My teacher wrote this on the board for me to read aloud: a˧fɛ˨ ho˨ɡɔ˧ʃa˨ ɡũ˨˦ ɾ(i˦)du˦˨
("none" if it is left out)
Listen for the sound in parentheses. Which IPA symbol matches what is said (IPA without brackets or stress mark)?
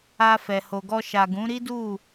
i˦